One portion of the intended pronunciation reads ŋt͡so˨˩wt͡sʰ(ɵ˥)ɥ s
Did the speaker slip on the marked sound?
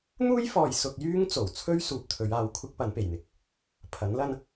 no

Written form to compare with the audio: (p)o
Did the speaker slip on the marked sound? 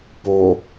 no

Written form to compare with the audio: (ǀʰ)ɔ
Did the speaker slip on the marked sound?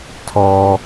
yes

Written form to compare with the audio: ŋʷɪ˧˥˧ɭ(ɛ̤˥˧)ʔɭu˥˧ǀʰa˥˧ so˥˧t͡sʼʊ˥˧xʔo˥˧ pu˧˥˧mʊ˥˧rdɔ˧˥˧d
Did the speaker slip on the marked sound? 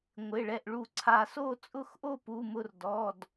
yes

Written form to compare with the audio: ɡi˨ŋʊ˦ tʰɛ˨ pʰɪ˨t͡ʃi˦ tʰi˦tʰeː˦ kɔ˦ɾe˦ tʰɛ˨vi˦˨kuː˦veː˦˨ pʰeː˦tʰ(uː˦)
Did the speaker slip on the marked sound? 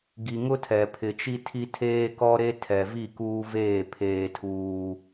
no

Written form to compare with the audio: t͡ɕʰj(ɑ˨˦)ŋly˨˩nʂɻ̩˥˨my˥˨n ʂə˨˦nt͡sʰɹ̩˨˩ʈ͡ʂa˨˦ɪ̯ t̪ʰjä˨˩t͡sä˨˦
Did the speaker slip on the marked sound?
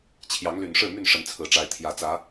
no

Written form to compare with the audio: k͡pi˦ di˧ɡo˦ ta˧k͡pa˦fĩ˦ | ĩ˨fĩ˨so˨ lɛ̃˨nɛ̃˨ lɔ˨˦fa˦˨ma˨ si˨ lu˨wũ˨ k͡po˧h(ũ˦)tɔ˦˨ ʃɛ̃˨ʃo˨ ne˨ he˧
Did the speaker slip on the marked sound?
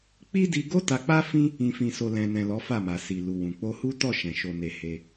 yes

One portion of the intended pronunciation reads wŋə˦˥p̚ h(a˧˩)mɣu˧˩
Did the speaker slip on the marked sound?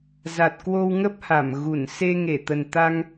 no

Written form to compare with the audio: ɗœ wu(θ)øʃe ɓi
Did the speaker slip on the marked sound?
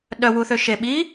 no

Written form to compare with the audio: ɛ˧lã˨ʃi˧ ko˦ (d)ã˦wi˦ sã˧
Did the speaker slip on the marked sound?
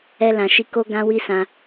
yes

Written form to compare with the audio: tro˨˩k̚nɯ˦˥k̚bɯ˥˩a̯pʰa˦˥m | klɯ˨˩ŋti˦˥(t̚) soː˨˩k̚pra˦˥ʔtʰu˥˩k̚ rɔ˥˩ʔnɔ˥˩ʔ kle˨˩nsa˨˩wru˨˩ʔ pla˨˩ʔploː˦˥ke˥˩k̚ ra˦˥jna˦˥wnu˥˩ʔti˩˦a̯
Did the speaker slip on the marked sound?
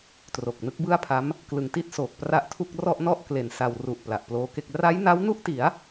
no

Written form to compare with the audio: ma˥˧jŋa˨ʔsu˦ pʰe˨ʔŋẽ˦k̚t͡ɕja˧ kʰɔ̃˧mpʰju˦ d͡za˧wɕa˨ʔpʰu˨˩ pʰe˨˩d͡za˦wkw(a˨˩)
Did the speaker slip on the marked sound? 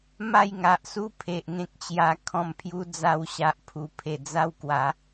yes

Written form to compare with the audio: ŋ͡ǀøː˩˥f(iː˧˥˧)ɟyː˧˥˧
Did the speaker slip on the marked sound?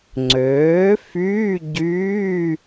yes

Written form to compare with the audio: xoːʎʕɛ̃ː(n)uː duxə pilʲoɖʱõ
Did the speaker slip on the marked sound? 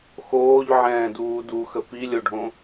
yes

